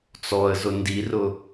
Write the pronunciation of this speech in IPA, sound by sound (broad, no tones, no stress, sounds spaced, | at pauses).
t͡s ɔ ə̯ z ʊ n d i r ʊ